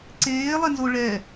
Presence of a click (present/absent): present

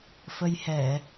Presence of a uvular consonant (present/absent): absent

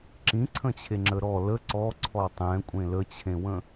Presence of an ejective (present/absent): present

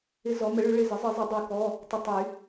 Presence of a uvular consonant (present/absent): absent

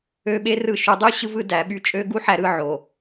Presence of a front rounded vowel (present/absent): present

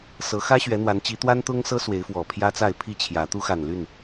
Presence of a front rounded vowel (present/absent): present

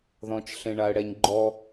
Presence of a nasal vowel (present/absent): present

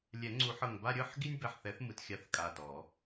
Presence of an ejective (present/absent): present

